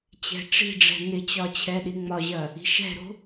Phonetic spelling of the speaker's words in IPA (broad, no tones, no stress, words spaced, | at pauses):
t͡ɕɛ̤ʈ͡ʂi̤ɖ͡ʐɛ̤ nɪt͡ɕɒ t͡ɕʰɛɗiŋ͡mɒʑɐ | i̤ʃɛ̤ɾo̤